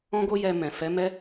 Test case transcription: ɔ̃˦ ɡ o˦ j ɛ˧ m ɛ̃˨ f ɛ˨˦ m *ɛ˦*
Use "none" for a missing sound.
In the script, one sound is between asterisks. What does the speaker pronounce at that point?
ɛ˦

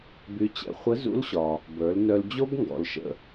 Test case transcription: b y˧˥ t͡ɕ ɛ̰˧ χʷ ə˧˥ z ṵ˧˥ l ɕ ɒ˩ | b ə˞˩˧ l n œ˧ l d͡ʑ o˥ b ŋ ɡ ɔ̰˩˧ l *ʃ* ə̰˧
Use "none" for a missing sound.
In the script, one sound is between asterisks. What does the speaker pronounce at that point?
ʃ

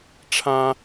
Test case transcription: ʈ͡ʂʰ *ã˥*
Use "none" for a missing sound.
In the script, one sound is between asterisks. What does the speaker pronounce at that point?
ã˥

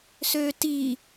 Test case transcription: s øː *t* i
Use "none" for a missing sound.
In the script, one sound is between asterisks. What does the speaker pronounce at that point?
t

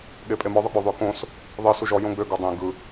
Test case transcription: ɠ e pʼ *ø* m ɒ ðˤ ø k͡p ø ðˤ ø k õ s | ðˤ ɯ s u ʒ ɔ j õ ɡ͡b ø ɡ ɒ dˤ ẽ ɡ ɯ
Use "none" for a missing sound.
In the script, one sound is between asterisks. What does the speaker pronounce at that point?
e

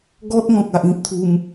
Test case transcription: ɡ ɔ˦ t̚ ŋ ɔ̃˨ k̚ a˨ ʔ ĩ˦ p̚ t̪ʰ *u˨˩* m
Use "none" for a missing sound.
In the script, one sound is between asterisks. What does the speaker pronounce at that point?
u˧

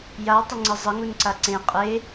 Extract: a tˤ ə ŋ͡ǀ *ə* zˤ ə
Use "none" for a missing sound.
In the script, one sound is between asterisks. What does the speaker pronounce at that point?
ə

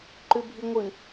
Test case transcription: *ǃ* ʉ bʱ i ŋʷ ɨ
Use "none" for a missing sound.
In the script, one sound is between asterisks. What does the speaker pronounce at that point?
ǃ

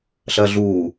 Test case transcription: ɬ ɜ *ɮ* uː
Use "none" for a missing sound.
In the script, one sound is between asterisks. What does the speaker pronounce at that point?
ɮ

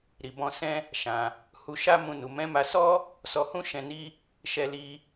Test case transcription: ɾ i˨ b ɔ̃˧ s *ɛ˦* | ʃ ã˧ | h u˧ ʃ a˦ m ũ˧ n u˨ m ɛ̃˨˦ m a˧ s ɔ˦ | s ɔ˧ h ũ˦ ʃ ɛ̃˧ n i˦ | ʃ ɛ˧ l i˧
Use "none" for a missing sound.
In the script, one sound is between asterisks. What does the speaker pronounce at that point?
ɛ̃˦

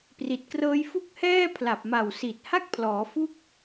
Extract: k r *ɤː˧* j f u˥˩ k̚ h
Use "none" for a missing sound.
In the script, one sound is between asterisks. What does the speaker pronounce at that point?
ɤː˦˥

